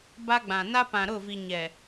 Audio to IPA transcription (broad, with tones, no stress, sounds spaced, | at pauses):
b a˦ ɡ͡b ã˨ n a˦ p ã˨ ɾ ʊ˦˨ v i˨ ɲ ɛ˨